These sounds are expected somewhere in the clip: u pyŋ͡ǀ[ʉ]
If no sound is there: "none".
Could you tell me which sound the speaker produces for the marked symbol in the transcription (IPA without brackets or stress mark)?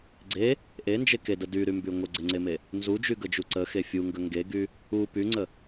ə